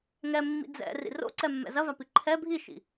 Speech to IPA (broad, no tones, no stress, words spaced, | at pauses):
ŋɛ mːḭd͡zɛ̰ rḭro̰ǀɛmːɛ̰ zɐvapi ǃʰɛ bʱiʃḭ